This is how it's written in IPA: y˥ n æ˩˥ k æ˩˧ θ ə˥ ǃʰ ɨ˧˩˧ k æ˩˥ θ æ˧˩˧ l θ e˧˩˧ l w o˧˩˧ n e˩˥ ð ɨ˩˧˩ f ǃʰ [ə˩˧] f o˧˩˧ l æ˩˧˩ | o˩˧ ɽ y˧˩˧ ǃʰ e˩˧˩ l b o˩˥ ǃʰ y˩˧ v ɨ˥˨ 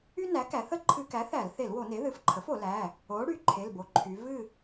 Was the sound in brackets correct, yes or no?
no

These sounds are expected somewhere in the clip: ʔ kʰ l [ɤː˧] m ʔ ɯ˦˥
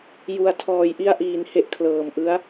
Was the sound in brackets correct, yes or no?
no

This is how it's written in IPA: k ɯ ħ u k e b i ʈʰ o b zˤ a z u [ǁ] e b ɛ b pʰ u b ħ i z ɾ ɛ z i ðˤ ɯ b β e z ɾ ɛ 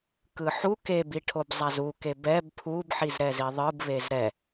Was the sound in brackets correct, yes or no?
no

